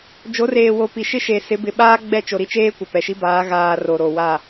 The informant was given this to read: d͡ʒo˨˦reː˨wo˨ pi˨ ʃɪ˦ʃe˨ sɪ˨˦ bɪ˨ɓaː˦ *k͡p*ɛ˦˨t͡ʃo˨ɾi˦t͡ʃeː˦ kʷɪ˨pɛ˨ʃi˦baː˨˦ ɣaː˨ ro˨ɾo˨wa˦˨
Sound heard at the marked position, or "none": ɡ͡b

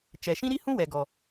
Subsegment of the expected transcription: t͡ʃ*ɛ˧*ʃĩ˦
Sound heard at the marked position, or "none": ɛ˨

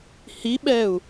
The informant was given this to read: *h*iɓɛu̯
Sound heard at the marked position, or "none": h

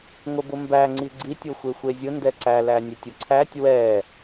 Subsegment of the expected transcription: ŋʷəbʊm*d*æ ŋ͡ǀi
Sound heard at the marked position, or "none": b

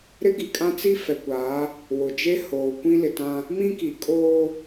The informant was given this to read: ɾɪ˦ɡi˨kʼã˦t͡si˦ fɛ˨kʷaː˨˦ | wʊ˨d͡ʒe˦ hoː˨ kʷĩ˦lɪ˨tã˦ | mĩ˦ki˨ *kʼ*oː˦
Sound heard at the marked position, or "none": kʼ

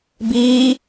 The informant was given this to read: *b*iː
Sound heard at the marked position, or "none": b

